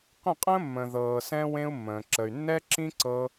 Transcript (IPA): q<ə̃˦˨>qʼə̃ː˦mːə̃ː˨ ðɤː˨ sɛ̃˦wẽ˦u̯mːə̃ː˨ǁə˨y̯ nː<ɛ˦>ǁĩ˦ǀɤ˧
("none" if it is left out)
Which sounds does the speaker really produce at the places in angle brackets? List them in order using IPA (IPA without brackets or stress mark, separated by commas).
ə̃˦˨, ɛ˦